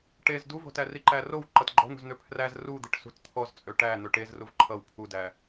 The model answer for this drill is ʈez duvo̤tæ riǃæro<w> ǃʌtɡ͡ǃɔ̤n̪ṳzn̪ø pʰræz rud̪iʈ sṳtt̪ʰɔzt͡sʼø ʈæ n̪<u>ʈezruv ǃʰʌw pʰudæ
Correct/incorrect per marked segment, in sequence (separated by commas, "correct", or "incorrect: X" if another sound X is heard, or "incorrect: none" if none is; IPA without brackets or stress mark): correct, incorrect: ø